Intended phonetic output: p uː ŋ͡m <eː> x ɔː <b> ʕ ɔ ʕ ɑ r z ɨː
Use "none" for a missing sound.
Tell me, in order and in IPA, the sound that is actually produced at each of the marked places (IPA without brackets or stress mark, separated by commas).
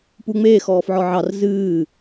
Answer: eː, f